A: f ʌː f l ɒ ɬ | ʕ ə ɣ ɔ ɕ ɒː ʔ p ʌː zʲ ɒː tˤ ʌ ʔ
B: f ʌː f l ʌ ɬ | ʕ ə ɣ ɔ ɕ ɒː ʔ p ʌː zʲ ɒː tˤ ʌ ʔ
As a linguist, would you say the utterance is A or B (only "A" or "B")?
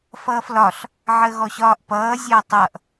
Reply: A